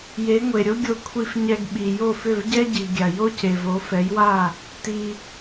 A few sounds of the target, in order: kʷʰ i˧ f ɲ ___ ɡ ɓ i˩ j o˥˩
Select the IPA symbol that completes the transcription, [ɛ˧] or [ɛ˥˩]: ɛ˧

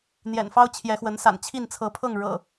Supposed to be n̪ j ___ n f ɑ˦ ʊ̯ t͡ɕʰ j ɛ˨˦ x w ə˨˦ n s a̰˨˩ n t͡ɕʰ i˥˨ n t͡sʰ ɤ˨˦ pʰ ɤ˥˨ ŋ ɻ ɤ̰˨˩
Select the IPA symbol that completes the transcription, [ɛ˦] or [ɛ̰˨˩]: ɛ̰˨˩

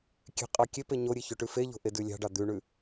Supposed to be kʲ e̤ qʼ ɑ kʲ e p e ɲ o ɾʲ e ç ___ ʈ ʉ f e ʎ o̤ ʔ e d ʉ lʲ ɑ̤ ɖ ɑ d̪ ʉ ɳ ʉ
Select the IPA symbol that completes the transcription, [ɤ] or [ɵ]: ɵ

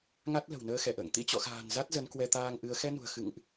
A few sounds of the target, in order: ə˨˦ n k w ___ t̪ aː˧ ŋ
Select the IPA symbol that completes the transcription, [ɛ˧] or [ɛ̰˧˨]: ɛ˧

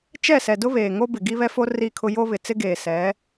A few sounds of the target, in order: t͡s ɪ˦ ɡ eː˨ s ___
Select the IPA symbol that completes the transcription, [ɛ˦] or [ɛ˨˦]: ɛ˨˦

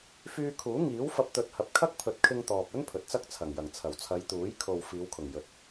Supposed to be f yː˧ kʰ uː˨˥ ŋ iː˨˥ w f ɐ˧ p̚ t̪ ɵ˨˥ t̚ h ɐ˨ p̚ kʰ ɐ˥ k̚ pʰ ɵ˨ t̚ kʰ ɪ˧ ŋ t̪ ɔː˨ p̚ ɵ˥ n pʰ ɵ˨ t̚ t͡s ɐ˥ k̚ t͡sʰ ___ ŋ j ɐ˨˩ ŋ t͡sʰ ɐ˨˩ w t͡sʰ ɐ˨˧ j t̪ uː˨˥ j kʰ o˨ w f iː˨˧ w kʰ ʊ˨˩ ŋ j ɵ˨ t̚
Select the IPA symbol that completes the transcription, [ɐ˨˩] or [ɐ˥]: ɐ˨˩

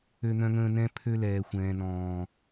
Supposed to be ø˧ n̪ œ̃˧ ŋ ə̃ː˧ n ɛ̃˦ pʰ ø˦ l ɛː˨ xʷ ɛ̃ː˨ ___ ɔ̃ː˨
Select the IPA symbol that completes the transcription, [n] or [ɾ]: n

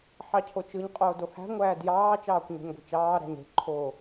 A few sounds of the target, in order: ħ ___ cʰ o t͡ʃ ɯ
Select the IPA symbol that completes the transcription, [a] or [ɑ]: ɑ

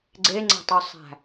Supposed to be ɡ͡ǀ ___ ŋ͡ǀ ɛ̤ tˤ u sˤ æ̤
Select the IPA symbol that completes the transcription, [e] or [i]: e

